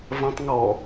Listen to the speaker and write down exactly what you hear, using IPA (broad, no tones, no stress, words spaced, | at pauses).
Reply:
vɐ̃tˤ ŋɔ